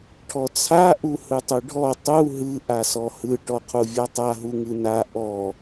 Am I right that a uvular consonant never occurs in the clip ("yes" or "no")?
no